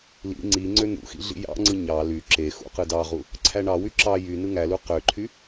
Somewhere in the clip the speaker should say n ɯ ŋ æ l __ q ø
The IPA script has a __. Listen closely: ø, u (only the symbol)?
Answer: u